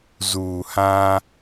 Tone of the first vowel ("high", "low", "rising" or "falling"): low